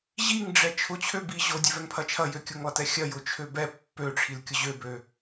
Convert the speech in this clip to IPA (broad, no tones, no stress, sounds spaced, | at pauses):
ʑ i ŋ ɖ͡ʐ ɛ t͡ʃʰ ʊ t͡ɕʰ ø b i ʑ o dʲ ɛ v ɛ ŋ pʰ ɐ t͡ʃʰ ɐ j ø kʲ ʊ ŋ lˠ ɐ t ɛ xʲ ɐ j ʊ t͡ʃʰ ø b ɛ pː ø ʈ͡ʂʰ i l kʲ ʊ ʑ ø b ø